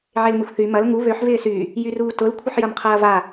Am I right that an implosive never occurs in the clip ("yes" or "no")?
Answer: yes